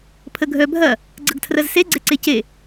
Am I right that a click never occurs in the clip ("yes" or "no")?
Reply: no